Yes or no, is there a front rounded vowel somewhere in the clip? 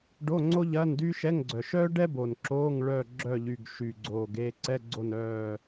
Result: yes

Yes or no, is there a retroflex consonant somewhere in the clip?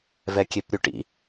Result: yes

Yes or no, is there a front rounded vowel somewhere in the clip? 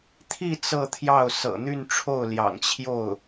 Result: yes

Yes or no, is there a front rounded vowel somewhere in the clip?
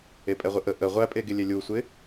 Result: no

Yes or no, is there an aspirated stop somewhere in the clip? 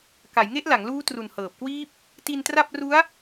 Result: no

